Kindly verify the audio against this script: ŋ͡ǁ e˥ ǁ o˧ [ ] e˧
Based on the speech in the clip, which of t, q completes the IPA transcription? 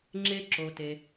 t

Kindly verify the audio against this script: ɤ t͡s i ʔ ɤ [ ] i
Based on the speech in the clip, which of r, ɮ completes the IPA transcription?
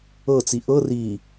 r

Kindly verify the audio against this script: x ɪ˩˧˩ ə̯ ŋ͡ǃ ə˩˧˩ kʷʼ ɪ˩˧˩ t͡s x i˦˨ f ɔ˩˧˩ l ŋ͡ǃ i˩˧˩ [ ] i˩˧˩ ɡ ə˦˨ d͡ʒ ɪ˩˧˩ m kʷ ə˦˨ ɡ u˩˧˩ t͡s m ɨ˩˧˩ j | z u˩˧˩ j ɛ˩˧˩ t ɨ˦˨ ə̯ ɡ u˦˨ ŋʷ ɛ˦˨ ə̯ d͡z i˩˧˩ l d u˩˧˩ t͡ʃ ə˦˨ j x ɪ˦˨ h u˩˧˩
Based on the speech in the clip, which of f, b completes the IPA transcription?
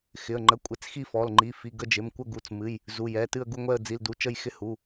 f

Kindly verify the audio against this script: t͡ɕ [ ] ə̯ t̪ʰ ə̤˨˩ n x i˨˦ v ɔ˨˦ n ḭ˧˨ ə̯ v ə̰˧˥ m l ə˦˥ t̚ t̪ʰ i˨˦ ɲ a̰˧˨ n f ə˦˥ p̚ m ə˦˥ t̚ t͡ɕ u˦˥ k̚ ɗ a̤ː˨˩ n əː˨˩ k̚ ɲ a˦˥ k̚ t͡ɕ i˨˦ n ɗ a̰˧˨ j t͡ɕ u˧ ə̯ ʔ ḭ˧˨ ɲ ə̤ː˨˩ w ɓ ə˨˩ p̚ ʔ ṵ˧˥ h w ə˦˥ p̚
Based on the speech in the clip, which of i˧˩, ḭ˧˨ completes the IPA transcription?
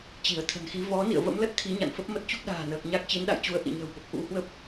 i˧˩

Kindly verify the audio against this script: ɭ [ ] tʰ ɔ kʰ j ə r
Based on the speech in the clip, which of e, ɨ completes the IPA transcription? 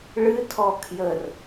ɨ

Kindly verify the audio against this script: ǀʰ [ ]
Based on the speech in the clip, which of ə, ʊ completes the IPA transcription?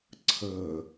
ə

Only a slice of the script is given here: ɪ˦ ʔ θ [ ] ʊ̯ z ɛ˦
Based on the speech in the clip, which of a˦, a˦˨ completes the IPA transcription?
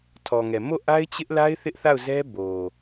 a˦˨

